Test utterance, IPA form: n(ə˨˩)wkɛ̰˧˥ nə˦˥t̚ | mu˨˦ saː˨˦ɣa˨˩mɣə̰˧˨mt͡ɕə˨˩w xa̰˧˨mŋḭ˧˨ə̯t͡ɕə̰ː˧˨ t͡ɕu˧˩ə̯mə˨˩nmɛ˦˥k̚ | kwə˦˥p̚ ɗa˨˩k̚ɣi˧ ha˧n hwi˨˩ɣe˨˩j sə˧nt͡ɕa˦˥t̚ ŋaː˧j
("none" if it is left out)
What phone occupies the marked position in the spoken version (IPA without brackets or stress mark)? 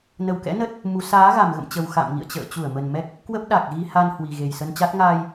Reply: ə˨˩